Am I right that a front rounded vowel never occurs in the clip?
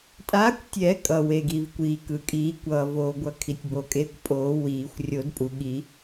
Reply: yes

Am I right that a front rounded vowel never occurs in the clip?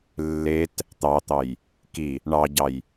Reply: yes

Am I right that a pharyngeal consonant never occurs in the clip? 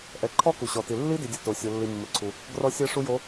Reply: yes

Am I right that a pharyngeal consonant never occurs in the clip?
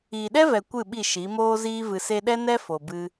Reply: yes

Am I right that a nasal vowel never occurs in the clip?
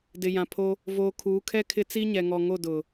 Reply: no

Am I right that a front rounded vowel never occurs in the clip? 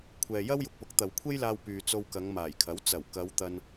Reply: no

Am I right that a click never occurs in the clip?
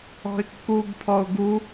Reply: yes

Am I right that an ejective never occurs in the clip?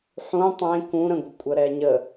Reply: no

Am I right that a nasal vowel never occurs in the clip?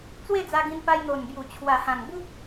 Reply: no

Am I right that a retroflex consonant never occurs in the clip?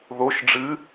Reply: no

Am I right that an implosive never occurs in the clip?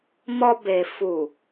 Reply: yes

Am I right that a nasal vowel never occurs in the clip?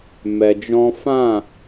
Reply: no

